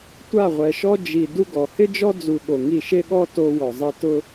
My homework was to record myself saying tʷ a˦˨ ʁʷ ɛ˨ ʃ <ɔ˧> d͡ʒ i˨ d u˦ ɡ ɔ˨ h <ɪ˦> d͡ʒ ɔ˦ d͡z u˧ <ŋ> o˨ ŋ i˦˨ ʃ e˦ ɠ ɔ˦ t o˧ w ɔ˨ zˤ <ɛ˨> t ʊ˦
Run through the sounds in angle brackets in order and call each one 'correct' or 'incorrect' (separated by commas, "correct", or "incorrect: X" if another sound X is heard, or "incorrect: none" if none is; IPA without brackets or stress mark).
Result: incorrect: ɔ˦, correct, incorrect: ɠ, incorrect: ɛ˧